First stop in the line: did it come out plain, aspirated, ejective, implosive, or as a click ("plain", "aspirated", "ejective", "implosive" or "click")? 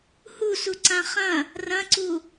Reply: click